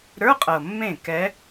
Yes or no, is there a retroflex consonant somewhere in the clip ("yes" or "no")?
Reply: no